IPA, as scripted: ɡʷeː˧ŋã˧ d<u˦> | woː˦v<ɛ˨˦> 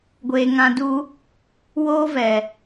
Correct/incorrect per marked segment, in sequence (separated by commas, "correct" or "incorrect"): correct, incorrect